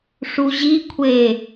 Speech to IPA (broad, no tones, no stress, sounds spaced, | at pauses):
ʂ u ʑ i kʷʰ e